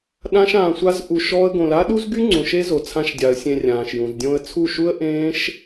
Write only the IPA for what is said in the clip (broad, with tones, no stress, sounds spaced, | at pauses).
ɗ ã˦ ʃ ãː˧ sʷ a˦ z ʔ u˧ ʃ ɔː˦ ə̯ ɡ õ˧ l a˦ ɗ u˦ z ɡ y˦ ŋ͡ǀ ũ˨ ʃ e˦ z o˨ t͡sʰ ã˧ ʃ dʲ a˨ ə̯ sʲ ẽ˧ rʲ ãː˨ ʃ j ũ˨ z dʲ õ˧ ə̯ t͡sʰ u˦˨ ʃ u˦ ə̯ ʔ ẽː˦ ʃ